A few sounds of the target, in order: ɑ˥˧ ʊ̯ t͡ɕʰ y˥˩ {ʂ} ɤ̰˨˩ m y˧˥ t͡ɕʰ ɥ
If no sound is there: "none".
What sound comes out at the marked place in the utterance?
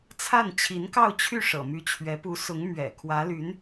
ʂ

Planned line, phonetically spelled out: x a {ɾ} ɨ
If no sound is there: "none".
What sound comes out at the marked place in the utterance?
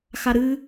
ɾ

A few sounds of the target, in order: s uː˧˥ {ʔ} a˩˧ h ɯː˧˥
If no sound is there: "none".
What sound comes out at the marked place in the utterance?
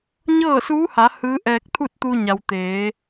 h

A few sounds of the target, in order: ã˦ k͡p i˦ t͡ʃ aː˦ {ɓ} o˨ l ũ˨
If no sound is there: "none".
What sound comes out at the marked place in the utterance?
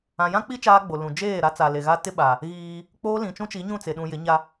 ɡ͡b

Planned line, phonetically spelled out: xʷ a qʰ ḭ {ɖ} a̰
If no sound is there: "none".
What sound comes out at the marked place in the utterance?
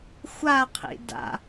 d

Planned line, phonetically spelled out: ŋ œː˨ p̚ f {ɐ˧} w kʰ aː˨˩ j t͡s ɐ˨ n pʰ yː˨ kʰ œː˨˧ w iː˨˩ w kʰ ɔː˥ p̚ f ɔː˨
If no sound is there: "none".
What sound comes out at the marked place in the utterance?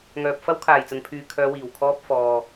ɐ˥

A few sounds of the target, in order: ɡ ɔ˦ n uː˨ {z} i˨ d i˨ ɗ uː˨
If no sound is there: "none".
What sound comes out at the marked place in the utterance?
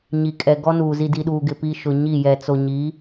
z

